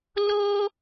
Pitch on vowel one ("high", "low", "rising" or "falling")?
high